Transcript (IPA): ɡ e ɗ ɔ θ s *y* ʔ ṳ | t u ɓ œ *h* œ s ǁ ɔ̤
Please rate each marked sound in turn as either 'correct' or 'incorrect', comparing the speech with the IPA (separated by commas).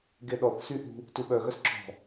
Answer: correct, incorrect